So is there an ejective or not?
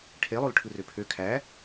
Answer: no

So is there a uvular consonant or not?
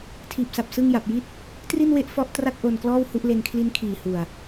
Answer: no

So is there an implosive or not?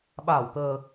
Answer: yes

